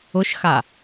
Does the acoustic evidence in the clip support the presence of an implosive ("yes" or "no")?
no